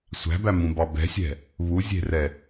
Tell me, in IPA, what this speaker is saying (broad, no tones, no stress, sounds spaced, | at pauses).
sʷ æ̤ b æ m ũ b ɑ b ɛ̤ sʲ ɛ̤ | β u zʲ e̤ r ɛ